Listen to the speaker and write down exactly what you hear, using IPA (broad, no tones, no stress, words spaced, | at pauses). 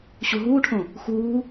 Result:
ɕuɦuːʈʰõ | xuː